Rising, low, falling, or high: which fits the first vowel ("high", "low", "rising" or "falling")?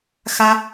high